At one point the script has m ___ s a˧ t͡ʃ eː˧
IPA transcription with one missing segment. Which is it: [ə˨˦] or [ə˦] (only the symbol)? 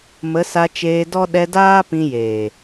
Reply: ə˨˦